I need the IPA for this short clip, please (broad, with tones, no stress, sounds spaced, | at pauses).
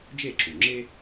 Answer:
d͡ʒ e˥˩ ǁ u˩ ŋ͡ǁ e˥